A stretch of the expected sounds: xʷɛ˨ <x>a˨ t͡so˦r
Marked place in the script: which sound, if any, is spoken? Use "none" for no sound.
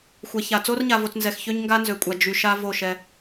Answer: ç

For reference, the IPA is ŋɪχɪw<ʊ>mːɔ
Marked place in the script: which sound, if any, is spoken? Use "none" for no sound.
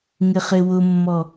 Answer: ʊ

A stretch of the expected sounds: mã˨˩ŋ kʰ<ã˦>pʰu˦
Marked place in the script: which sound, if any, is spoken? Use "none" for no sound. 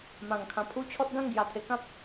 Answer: ã˨˩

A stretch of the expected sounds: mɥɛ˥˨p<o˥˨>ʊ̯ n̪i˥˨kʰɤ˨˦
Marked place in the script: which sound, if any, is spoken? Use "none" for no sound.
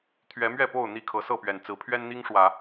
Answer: o˥˨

